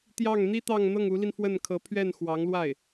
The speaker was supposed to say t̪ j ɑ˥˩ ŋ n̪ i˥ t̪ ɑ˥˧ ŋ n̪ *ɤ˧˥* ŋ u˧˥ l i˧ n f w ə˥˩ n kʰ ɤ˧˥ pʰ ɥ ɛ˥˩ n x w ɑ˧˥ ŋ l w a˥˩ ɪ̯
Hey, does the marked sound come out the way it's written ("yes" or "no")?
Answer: no